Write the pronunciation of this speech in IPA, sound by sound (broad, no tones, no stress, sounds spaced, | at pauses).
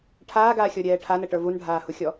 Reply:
ʈʰ aː ɡ aː xʲ ɔ ɾʲ ɛː ʈʰ a n ə ʈ ə˞ v u n ɖʱ aː h u xʲ ɔ